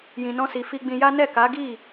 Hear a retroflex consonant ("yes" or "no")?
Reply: no